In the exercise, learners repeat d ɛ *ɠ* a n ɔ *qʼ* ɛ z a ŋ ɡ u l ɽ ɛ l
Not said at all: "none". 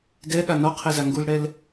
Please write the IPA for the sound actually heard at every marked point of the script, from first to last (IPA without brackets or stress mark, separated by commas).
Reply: ɠ, qʰ